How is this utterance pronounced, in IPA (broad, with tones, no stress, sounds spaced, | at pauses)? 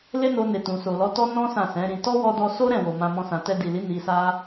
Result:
l e˦ n o˧ n e˨ t ũ˨ s o˨ l ɔ˧ t ɔ˦ n ɔ̃˦ s ã˦˨ s ɛ̃˨˦ ɾ ĩ˧ t ɔ˦ w ɔ˧ d ɔ˧ s o˦ ɾ ɛ̃˦˨ w o˨ m ã˧ m ɔ̃˧ s ã˨ t ɛ˧ d i˨ l i˨˦ n i˧ s a˦